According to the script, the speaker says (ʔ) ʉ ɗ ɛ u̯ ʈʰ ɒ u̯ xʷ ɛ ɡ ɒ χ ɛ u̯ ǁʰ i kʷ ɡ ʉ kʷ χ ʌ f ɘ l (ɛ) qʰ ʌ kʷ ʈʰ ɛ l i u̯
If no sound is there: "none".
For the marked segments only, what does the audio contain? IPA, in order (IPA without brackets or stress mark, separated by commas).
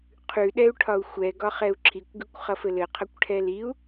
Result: qʰ, ɘ